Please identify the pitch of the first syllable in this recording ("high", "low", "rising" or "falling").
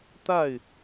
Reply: falling